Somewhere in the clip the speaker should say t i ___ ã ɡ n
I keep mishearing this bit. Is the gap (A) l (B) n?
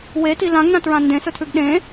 A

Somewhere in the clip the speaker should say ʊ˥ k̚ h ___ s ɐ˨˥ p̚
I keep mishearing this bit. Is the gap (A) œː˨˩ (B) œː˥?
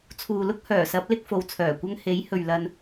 A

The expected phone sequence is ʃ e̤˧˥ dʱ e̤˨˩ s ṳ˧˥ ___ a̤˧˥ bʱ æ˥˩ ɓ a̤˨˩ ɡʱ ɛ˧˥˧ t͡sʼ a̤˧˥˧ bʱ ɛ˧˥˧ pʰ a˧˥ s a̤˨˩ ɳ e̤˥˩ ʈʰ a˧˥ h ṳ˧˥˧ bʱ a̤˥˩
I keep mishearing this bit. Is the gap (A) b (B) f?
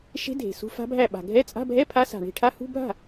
B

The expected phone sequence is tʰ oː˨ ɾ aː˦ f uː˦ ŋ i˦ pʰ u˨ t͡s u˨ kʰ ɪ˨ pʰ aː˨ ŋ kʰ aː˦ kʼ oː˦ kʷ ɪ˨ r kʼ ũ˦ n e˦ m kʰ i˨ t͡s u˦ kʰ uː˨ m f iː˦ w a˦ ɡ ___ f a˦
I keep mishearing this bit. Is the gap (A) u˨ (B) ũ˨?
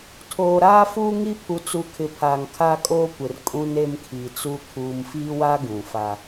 B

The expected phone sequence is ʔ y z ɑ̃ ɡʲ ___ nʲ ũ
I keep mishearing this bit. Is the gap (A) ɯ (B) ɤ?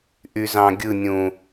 A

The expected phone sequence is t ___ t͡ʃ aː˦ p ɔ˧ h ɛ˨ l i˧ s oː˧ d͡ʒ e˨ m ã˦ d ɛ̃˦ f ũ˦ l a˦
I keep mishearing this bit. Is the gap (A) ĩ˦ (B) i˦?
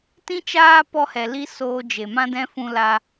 A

